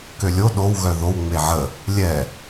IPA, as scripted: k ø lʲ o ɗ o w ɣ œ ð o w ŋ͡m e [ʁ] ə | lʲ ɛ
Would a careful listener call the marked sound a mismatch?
yes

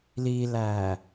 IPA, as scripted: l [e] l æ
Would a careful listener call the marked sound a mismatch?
yes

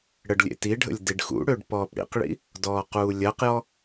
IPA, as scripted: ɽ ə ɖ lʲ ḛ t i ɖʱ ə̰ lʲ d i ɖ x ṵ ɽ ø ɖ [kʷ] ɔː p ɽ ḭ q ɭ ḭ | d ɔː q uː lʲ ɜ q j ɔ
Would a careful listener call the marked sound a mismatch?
yes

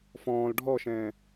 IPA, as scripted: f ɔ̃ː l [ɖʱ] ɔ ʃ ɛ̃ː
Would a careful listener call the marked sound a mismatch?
no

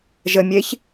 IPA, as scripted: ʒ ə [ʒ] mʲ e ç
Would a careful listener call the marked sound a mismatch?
yes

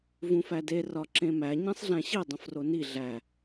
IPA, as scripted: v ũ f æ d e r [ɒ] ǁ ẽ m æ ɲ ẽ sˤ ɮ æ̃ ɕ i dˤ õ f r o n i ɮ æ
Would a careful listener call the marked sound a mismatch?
no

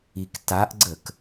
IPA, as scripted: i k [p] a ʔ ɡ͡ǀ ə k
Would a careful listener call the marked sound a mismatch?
yes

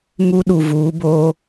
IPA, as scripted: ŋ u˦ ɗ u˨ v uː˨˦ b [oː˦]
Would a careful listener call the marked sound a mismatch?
no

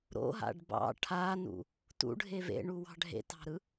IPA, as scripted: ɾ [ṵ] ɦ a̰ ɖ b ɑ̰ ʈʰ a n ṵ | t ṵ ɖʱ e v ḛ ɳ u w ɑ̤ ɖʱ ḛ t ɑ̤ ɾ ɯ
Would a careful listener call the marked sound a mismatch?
yes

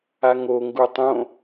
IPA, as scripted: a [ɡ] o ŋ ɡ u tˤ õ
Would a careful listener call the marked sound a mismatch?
yes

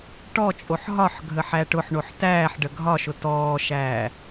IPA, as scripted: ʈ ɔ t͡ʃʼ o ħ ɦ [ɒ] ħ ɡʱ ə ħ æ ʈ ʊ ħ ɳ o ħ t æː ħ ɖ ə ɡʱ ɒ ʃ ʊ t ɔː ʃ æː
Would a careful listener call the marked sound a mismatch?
no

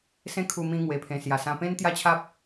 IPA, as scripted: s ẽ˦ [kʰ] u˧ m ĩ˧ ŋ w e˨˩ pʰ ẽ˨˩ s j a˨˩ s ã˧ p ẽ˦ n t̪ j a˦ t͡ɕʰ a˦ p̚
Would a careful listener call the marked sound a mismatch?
no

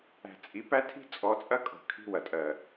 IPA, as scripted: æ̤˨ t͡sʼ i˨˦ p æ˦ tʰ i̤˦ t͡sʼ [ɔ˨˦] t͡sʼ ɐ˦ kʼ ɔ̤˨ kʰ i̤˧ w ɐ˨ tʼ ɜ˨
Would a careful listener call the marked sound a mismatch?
no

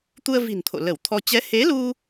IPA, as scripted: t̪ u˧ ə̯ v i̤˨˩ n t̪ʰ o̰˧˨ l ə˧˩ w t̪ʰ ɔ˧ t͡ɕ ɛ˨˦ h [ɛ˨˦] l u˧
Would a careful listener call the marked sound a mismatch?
yes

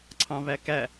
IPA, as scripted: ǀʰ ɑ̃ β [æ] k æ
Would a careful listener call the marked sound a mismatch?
no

